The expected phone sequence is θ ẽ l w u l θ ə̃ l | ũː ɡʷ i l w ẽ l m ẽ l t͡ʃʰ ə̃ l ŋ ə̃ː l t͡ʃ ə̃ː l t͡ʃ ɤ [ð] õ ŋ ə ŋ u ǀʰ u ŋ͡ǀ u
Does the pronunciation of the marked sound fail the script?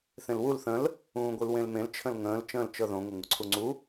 no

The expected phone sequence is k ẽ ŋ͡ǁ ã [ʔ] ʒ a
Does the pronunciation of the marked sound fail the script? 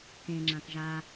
yes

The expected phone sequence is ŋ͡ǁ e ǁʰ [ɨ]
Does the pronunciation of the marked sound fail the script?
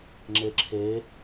yes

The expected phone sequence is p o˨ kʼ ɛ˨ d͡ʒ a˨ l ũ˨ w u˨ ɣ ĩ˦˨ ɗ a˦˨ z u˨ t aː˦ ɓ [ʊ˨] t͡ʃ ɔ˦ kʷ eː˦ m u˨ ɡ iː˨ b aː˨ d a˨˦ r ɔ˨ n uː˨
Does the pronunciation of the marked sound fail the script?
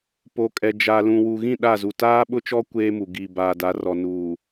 yes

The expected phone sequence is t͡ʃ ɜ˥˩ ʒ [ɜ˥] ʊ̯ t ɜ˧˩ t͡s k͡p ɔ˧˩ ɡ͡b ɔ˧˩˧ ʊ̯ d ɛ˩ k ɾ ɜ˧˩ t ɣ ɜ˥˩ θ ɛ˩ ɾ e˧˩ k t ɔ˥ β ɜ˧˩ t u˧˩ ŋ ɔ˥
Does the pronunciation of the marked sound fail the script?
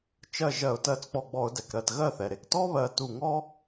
yes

